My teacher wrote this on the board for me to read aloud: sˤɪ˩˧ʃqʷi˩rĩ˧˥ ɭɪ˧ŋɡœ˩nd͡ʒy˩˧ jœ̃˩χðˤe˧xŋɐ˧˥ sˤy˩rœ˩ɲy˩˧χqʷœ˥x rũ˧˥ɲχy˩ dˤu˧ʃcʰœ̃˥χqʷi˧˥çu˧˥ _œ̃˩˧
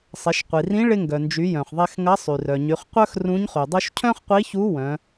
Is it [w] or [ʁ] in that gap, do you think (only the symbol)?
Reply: w